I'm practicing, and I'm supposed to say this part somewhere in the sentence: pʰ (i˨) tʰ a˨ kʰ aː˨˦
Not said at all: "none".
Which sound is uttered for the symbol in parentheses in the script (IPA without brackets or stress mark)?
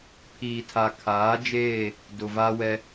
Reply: iː˨